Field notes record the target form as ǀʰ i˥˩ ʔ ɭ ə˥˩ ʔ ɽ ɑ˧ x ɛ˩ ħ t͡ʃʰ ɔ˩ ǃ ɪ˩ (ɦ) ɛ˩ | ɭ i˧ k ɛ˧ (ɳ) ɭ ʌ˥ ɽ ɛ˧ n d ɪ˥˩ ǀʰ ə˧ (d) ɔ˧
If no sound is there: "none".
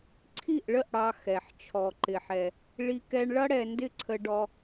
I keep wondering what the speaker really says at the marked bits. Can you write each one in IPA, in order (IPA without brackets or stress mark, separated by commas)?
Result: ħ, ɳ, ɖ